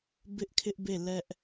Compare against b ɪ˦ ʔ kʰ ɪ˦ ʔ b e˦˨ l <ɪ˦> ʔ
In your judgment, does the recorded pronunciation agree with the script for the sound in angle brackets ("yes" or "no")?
no